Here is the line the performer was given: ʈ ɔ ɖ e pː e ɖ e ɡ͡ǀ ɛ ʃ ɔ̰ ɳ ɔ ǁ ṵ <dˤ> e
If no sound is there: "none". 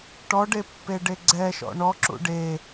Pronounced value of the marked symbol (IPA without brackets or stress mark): ɖ